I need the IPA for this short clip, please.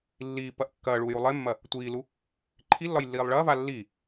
lː iː p ɐ ʔ kː ɐː ɭ uː j u lˠ e mː ɐ | tʷ iː l u | ǃʰ i lː ɒ j lː iː lˠ ɭ ɐː v a lː i

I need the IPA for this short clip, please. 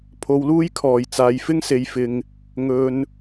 pʰ o˨˧ w l uː˥ j kʰ ɔː˨˩ j t͡s aː˨ j f ɪ˥ ŋ s e˨ j f ɪ˨ ŋ | ŋ ɵ˨ n

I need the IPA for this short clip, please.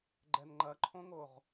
ɡ͡ǃ ɛ n ŋ͡ǃ ɐ ǃʰ õ ŋ o ʁ

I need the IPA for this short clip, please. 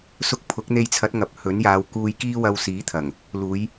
s ʊ˧ k̚ pʰ ʊ˨˥ k̚ n̪ e˧ j t͡sʰ ɐ˨˥ t̚ ŋ ɐ˨ p̚ h ɵ˨˥ n j aː˨˧ w k uː˧ j k iː˥ w ɐ˧ w s iː˨˥ t̪ʰ ɐ˨˩ ŋ | l uː˨˧ j

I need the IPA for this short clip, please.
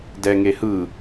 d ɛ ŋ e h ɯ

